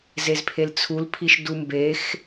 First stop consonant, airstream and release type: aspirated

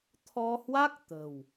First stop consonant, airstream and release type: aspirated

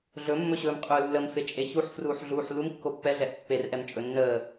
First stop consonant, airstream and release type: ejective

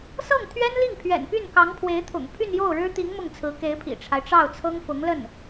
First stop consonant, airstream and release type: aspirated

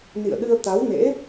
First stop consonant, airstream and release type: implosive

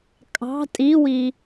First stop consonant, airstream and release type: ejective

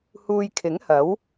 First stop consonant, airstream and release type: aspirated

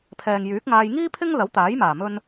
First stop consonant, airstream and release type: aspirated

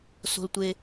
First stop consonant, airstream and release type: plain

